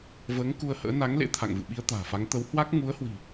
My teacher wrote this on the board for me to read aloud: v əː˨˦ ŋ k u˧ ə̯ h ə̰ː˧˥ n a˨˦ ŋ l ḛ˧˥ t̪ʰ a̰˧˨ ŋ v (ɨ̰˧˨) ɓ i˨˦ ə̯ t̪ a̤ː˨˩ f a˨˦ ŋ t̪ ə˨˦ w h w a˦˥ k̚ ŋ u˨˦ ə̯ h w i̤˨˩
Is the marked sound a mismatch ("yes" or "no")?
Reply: no